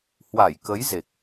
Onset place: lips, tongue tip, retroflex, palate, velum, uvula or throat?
throat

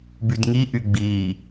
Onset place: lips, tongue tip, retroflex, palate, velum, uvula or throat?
lips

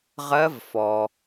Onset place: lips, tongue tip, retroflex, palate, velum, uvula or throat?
uvula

